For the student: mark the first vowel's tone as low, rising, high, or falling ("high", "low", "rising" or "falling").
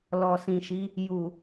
low